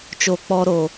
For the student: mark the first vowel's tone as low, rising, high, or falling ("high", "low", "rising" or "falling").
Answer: low